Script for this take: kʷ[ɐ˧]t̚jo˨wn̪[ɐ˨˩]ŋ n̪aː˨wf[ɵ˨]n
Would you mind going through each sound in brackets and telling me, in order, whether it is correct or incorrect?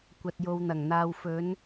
incorrect: ɐ˨, correct, incorrect: ɵ˨˧

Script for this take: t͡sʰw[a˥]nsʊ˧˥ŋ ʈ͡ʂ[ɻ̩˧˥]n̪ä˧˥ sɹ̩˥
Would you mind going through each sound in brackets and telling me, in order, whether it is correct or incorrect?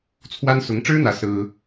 correct, incorrect: ɻ̩˥

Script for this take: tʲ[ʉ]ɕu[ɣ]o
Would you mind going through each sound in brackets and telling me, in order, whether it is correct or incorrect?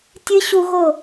incorrect: ɨ, correct

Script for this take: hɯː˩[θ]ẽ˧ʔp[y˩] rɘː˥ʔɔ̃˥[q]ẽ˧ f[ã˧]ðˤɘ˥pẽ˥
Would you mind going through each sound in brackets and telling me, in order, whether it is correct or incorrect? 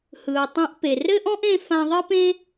incorrect: tˤ, incorrect: e˩, incorrect: ʔ, correct

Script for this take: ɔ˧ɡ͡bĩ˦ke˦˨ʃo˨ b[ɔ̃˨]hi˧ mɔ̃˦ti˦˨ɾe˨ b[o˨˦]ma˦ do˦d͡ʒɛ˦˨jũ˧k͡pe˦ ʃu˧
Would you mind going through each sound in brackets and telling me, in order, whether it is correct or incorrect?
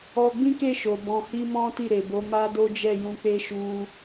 correct, correct

